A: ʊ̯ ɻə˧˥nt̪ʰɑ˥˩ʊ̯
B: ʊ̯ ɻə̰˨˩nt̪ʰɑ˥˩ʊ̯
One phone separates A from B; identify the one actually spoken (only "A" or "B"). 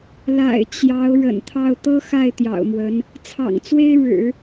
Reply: B